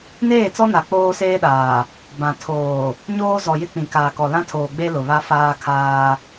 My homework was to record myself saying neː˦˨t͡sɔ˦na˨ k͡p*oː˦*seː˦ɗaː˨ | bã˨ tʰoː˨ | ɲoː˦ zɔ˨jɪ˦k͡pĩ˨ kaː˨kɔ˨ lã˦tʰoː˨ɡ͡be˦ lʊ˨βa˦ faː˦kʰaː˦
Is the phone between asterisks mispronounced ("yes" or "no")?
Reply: no